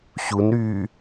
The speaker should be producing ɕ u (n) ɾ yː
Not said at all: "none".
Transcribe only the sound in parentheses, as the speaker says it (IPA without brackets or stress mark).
n